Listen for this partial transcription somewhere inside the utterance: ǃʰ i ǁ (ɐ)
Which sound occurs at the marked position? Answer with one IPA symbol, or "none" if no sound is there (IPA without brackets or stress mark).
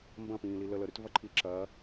ɐː